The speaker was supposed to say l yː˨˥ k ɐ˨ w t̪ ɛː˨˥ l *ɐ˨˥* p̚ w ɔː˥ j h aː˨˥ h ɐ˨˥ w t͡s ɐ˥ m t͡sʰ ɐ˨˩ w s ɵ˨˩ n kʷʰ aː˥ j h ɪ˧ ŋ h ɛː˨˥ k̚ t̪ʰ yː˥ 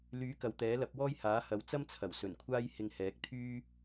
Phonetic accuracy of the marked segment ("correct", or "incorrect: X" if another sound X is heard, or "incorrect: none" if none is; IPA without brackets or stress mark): correct